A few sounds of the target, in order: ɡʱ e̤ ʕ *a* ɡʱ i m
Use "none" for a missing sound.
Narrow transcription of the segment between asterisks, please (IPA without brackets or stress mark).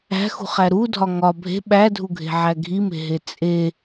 æ